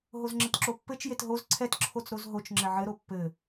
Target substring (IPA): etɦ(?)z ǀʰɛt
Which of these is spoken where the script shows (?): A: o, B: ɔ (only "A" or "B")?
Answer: A